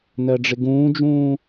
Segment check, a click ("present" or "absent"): absent